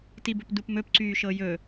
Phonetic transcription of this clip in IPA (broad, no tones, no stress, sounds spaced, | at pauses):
t i b ɵ p d u p m ɵ p ǀ yː ʃ ɤ j ɵ